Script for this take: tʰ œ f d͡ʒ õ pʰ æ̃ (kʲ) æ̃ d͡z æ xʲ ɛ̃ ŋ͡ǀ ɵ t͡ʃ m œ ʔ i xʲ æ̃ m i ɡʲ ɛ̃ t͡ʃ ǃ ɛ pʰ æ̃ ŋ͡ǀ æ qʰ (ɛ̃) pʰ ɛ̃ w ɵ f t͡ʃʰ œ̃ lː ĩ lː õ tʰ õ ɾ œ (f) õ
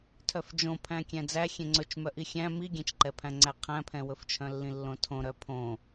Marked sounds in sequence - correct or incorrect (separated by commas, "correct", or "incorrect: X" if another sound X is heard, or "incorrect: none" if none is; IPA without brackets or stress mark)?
correct, incorrect: æ̃, incorrect: pʰ